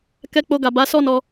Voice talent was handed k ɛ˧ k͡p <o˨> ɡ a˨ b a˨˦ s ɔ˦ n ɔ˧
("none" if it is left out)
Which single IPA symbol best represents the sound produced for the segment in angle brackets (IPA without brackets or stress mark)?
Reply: o˧